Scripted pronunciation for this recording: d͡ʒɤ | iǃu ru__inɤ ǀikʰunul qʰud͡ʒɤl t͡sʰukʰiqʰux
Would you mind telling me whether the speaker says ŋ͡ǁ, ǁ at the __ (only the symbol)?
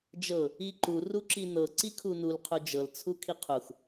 ǁ